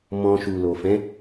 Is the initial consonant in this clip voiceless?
no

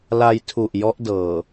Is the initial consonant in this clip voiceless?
no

